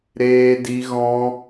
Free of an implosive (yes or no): yes